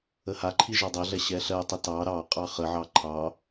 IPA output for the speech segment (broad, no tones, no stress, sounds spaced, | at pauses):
ə h a ǃʰ i ʒ ɑ dˤ ɜ ɮ ɛ ɕ ɛ ɬ ɜ tˤ ə t ɑ ɾ ɑ qʼ ɑ χ ə ʕ ɑ ǃʰ ɑ